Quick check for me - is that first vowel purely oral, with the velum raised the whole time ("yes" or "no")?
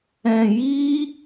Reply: no